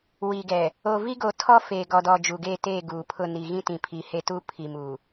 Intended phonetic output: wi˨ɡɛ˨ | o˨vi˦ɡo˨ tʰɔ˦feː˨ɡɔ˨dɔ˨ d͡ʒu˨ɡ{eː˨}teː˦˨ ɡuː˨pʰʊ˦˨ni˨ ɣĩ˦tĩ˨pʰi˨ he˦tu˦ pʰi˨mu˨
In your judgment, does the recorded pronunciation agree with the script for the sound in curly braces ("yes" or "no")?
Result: no